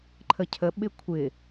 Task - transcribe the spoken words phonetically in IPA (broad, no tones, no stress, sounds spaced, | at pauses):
ǃʰ ə cʰ ə ɓ ɪ kʷʰ ɪ